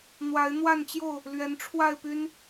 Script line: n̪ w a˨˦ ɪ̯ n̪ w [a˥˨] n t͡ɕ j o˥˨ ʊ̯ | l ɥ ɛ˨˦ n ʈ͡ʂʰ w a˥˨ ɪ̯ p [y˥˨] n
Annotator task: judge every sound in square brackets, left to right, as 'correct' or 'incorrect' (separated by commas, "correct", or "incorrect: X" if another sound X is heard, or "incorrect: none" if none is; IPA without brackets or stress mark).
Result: correct, incorrect: y˦